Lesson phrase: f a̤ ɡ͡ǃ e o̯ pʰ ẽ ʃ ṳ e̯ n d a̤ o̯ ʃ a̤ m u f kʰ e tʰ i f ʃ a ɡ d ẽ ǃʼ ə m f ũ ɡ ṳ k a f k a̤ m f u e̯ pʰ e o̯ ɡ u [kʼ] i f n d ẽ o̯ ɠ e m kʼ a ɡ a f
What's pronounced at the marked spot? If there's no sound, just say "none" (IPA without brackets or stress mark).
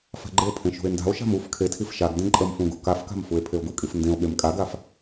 kʼ